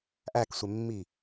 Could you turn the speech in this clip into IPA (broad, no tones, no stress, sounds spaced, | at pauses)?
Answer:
ʔ æ k sʷ e mː i